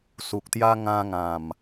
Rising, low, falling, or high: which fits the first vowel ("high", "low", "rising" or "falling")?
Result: low